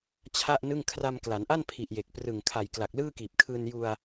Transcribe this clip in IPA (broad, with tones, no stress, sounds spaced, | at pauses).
t͡ɕʰ a˥˩ ʔ n ɯ˥˩ ŋ kʰ r a˧ m k l a˩˦ n ʔ a˥˩ n pʰ i˨˩ ʔ j e˨˩ k̚ p r ɯ˨˩ ŋ kʰ a˨˩ j k l a˨˩ k̚ l ɯː˥˩ k iː˨˩ p̚ kʰ ɯː˧ n j u˧ a̯